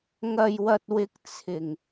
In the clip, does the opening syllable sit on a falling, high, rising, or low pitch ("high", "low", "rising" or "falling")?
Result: low